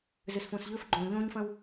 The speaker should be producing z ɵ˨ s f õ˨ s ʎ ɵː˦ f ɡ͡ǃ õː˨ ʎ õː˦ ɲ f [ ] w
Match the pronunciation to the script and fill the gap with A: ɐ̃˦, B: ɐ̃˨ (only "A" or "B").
A